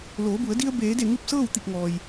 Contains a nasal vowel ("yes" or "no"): no